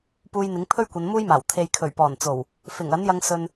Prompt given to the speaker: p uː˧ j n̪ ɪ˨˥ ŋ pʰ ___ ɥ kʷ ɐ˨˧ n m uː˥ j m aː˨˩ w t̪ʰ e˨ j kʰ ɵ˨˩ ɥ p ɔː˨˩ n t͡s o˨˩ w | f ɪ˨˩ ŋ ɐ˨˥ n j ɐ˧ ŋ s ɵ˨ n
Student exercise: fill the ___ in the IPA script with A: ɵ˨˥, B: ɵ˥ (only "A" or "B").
B